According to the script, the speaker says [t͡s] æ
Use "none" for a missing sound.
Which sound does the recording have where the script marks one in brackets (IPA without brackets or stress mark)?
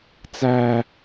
t͡s